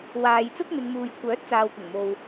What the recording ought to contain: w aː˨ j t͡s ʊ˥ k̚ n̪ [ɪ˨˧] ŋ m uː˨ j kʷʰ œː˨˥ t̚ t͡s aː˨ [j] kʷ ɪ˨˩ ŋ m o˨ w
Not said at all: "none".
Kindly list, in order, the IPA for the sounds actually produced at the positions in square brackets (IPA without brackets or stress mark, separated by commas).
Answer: ɪ˨˧, w